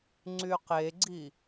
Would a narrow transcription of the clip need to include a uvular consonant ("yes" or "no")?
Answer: yes